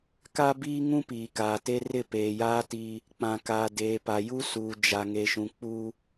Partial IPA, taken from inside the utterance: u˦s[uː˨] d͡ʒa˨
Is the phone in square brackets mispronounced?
no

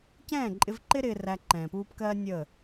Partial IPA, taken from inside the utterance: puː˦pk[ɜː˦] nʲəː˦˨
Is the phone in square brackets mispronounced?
no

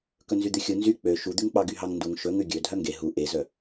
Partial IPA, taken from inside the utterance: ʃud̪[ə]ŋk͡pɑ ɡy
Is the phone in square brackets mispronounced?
yes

